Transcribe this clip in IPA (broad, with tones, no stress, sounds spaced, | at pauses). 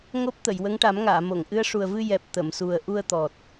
ŋ o˦˥ p̚ t̪ ə˨˩˨ j w ə˧˥ ŋ ʈ a˨˩˦ m ŋ aː˨˩˨ m o˨˩˨ ŋ ʔ ɨ˧˥ ə̯ ʂ u˨˩ ə̯ v ɨ˧ j ɛ˨˩ p̚ t̪ ə˨˩˨ m s u˨˩ ə̯ ʔ u˧ ə̯ t̪ ɔ˨˩ t̚